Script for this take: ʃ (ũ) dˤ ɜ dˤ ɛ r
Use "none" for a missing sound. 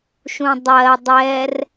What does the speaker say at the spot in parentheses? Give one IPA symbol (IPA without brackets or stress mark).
ũ